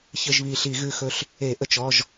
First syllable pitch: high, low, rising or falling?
falling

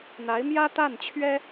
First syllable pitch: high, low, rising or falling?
rising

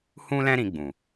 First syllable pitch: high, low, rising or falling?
high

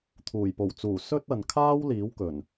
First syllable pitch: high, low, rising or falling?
low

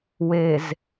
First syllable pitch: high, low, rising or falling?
low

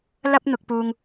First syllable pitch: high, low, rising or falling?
high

